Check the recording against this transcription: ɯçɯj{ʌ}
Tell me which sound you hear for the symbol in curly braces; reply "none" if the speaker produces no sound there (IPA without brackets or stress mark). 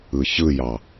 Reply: ɑ